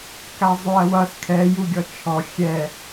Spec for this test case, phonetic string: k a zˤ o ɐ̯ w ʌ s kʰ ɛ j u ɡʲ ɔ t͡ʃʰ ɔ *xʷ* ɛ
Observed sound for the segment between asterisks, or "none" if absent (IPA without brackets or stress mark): xʲ